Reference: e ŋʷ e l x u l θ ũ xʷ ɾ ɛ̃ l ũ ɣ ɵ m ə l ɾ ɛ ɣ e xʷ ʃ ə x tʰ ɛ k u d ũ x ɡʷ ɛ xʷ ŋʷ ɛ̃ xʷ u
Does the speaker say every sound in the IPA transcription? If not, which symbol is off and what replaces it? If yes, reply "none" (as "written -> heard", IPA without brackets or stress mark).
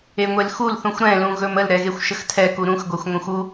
d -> ɾ